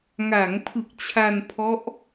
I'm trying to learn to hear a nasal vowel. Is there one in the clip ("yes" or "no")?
no